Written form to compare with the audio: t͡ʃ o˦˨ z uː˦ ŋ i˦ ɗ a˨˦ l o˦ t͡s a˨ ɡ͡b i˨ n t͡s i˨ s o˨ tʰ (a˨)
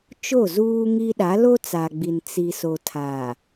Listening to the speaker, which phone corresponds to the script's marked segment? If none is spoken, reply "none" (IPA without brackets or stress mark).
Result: a˨